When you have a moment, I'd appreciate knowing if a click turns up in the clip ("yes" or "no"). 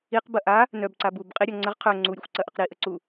yes